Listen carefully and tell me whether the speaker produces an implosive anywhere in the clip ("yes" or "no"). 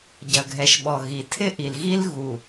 yes